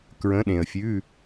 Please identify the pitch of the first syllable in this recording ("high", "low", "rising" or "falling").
rising